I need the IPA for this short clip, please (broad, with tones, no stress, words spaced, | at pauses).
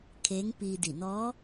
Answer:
kʰeː˧˥ŋpiː˧ di˧˩ nɔː˧˥